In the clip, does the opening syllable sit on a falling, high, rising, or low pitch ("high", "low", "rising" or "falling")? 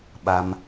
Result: low